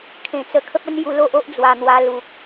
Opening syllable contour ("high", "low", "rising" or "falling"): low